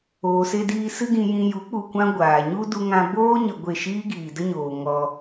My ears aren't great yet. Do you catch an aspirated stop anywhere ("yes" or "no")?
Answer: no